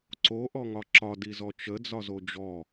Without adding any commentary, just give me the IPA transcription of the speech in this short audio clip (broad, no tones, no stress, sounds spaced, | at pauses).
ǀ o ʔ ɔ ŋ ɒ ǁ ɒ d i z ɔ t͡ʃ ə d͡z ɒ z o d͡ʒ ɔ